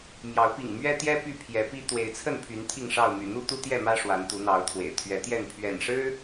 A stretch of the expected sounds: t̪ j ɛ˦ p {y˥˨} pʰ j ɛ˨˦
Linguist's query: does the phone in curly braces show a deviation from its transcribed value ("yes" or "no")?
no